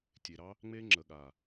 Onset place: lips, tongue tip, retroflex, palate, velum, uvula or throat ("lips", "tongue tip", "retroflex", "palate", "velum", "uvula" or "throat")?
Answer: tongue tip